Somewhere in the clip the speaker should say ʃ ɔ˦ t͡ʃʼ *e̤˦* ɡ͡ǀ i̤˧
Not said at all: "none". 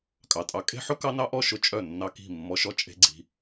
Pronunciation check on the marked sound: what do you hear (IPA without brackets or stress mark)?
e̤˦